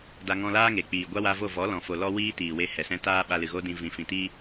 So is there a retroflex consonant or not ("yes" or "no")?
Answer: no